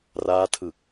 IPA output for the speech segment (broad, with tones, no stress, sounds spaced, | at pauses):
r aː˦˥ tʰ ɯ˨˩ k̚